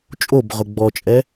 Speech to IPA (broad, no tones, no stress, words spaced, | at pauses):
t͡ʃʼobʁʊ ɡ͡bɔt͡ʃʼɛ